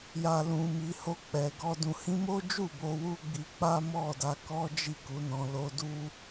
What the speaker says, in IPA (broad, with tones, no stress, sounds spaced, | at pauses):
j a˨ l ũ˨ m i˨ h o˧ k͡p ɛ˨ ɡ ɔ˧ d ũ˨ h ĩ˧ m o˦ d͡ʒ u˦˨ b o˧ w u˦ ɡ͡b i˧ k͡p a˦ m ɔ˦˨ d a˧ k ɔ˦ d͡ʒ i˦˨ k u˨˦ n ɔ̃˧ l o˦ d u˦